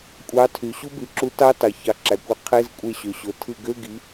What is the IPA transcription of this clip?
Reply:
kʷʼɑ˨˥tʰy˩ ɕu˦˥by˩˧ǁu˨˥ tɑ˦˥tɑ˩ çɑ˩˧ǁæ˩kʷæ˨˥ qʰe˧˥˧zkʷʼe˧˩ɕø˩ɕo˩ tʰɯ˧˩ɡø˧˥˧ɡi˩˧

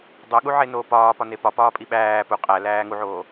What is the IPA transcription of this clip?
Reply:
dˤoɠuʕenoː pɒːpɒne pɒpɒːpʼi ɓæː pu qʼælæː ŋuʕoː

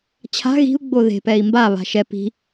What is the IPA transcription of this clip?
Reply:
t͡ɕʰa̤ ɣi̤u̯ ɡ͡boðe̤pɛi̯ mbaβa̤ ʃɛ pi̤

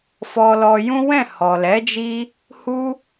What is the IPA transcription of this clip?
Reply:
fɔ˧lɔ˧jũ˦ wɛ̃˦˨ hɔ˨lɛ˨˦ d͡ʒi˧ | hu˦

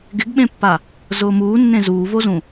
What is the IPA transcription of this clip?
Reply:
ɡɪɡɓẽpːa | zʊːmuːnːẽ zuːvozũ

